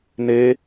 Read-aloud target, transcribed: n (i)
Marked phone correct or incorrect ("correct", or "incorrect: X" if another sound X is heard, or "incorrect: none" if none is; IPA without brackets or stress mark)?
incorrect: e